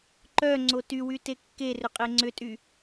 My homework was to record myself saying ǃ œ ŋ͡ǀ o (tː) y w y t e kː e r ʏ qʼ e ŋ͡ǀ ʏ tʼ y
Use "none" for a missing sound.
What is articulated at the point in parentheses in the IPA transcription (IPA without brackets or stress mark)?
t